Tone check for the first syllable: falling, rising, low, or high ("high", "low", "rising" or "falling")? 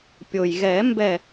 low